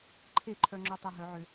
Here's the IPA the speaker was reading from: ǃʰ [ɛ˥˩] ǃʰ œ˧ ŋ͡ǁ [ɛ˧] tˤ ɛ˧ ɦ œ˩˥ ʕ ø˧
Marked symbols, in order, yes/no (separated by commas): no, no